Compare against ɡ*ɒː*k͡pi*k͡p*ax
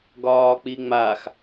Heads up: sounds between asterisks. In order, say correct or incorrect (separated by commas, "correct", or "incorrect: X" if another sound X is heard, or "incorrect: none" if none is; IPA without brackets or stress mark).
correct, incorrect: ŋ͡m